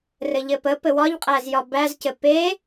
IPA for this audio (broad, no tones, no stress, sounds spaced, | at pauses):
r ɘ ʎ ɘ p ə p ɘ w ɒ ʎ qʼ æ z j ɒ b æ z c ɘ p e